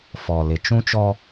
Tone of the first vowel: low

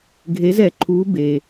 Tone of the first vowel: rising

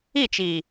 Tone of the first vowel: falling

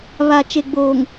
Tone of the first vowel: low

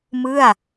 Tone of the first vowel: falling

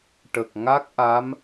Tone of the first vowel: low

